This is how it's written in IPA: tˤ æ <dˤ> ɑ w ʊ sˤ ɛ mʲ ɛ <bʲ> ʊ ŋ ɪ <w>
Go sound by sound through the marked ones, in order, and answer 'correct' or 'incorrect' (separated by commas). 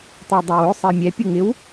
correct, incorrect, correct